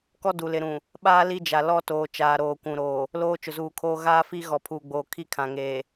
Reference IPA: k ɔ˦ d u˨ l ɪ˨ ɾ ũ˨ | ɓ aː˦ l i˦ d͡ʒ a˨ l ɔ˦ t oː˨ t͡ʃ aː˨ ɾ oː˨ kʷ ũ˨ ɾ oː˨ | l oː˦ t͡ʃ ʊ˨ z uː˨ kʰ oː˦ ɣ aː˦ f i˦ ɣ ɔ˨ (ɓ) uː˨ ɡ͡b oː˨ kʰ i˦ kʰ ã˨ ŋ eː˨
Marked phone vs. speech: incorrect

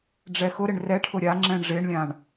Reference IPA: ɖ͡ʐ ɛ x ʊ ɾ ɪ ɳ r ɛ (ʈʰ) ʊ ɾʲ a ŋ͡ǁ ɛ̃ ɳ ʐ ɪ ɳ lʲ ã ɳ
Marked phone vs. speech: correct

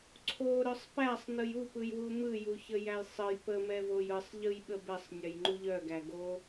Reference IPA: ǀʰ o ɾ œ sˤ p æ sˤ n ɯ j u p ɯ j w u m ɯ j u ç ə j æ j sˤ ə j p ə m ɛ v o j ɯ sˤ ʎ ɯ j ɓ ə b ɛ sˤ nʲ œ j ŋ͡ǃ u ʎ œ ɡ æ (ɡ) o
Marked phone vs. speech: correct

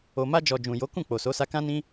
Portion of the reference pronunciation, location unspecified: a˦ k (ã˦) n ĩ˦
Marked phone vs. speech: correct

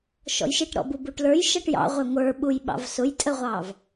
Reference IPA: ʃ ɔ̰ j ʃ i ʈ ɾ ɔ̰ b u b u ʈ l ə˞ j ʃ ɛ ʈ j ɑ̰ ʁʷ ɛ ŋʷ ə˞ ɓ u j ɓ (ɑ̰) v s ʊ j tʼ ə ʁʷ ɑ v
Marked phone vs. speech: correct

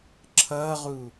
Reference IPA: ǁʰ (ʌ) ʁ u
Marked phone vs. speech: correct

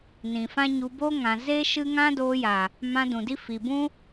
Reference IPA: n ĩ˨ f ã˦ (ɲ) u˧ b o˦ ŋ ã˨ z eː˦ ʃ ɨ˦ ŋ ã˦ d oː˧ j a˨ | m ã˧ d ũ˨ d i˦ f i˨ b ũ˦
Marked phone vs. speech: correct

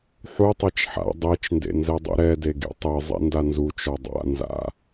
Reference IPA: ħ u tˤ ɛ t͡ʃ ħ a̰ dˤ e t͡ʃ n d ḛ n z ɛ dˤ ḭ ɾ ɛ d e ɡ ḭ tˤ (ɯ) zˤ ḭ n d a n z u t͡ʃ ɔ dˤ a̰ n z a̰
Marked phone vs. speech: correct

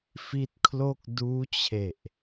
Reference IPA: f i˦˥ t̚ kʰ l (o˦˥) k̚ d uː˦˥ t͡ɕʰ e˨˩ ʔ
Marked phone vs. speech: incorrect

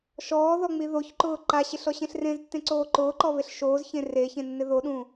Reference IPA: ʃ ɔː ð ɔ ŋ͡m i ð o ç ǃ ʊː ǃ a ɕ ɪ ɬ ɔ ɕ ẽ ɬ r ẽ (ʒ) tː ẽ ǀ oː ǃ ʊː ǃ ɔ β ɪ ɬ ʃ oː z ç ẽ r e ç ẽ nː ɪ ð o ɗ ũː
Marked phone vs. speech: incorrect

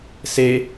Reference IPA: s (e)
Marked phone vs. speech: correct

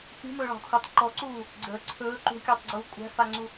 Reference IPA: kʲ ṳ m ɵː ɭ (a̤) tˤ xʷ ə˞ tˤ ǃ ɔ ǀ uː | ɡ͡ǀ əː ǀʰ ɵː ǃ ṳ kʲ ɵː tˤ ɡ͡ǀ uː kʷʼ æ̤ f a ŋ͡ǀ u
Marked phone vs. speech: correct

